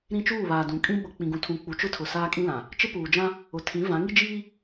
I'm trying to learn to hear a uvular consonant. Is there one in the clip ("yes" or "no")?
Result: no